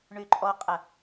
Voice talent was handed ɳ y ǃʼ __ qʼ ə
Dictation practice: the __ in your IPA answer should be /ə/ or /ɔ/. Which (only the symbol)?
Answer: ɔ